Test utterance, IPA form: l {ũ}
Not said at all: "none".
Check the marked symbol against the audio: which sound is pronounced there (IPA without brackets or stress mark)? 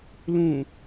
ũ